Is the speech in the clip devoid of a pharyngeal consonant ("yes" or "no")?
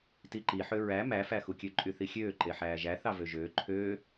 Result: no